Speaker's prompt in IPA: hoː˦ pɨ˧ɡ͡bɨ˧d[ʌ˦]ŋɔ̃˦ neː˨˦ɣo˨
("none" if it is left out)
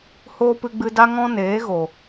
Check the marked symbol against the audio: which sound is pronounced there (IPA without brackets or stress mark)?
a˦